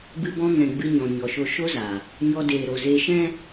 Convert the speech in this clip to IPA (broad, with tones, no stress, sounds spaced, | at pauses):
b ɨ˧ b ɔ̃˧ ŋ ɛ̃˨ ɡ͡b ɨ˧ ɲ ɔ̃˨ ɲ ɔ˨ ʃ o˧ ʃ o˦ z a˨ | ɲ ɔ˧ d eː˨ ɾ o˨ z e˧ ʃ ɛ̃˦